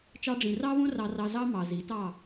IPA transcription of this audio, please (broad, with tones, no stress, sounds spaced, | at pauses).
t͡ʃ ɑ˧ ɖ͡ʐ ĩ˨ r ɑ˦ β õ˦ r ɑ˧ r ɑ˧ z ɑ˦ m ɑ˨ z i˨˦ t ɑ˦˨